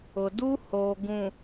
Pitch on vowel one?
low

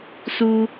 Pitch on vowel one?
high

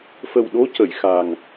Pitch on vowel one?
low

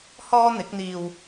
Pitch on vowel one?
high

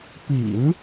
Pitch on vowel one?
low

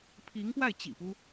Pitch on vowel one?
rising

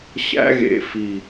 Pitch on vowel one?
high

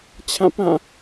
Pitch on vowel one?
falling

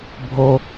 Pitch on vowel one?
high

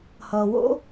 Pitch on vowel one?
low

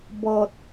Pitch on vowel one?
low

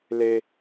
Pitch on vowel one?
high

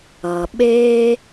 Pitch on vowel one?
low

